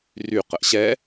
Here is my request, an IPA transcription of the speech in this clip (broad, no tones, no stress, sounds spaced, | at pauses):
r y q ə ʔ ɕ ɛ